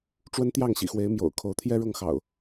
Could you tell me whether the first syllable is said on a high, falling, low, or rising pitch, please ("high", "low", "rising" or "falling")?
high